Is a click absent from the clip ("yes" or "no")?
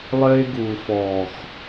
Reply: yes